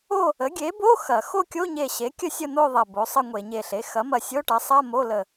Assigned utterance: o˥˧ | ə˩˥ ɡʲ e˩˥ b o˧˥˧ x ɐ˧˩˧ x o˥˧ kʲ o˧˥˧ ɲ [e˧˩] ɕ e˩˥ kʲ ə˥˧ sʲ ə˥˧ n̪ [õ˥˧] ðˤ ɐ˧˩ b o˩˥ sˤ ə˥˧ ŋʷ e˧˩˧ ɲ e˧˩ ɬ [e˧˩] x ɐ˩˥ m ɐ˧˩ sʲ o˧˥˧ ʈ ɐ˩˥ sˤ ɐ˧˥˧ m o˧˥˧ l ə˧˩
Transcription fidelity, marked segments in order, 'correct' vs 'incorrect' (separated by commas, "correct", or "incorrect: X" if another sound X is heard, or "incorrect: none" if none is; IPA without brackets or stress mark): correct, incorrect: o˥˧, incorrect: e˩˥